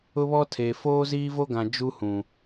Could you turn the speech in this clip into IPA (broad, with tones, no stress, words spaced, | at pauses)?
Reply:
ʊ˦βɔ˦ tʰe˨ foː˦ziː˦vo˦ɡã˨ d͡ʒu˦hũ˨